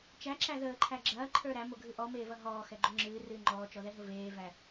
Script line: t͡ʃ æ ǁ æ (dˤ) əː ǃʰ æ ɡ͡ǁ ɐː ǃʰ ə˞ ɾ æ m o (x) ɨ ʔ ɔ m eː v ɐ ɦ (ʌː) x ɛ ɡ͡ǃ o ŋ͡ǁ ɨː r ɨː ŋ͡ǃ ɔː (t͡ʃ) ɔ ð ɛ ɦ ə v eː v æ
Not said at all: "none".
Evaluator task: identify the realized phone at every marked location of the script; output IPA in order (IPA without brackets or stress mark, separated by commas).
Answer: ð, ɡʱ, ɔː, t͡ʃ